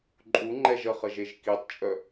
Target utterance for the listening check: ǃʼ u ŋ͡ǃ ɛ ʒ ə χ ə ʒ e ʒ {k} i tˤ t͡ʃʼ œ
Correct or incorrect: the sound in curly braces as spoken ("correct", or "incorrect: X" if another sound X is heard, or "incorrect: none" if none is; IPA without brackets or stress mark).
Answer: correct